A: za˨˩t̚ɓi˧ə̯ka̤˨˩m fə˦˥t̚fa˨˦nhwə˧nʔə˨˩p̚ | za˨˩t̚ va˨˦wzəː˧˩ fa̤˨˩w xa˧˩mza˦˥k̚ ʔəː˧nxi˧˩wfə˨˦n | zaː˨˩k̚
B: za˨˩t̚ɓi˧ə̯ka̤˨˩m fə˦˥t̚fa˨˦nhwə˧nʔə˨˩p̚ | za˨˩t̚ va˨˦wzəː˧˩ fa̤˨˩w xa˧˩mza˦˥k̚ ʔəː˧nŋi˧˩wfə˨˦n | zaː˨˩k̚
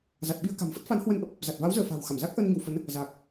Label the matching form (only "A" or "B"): B